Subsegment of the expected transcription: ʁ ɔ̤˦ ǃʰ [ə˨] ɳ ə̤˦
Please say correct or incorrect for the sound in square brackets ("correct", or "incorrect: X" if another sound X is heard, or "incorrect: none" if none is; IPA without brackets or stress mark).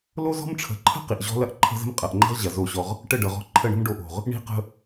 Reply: incorrect: ə˦˨